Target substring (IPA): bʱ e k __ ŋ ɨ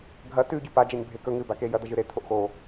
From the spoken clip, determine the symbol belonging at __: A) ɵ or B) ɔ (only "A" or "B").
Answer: A